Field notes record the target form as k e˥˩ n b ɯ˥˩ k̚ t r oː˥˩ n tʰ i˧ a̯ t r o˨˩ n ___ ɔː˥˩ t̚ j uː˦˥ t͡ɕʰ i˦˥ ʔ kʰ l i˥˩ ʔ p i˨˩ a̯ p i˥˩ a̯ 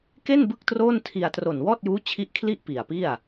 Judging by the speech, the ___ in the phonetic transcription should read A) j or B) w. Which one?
B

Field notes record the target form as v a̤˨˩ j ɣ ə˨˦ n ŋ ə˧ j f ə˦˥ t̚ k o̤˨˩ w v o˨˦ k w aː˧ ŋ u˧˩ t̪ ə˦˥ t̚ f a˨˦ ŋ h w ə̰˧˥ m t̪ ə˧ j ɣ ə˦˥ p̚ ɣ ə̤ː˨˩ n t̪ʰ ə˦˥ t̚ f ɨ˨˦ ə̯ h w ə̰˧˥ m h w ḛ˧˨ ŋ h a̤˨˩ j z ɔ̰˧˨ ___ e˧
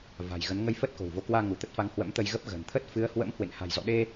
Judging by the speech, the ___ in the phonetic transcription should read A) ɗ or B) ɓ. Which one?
A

